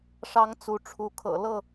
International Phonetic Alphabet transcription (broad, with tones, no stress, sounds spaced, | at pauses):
ʂ ɑ˨˦ ŋ t͡s u˨˦ ʈ͡ʂʰ u˨˦ kʰ ɤ̰˨˩ l ɤ˥˨